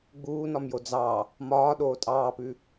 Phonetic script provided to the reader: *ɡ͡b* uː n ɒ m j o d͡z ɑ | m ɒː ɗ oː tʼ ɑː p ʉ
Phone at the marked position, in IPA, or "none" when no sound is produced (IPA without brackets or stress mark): ɡ͡b